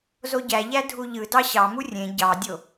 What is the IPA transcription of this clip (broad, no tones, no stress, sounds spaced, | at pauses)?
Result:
z o ɟ æ ʎ æ dʱ u ʎ ɯ d ɑ ɕ ɑ m u rʲ ẽ ɟ ɑ dʲ o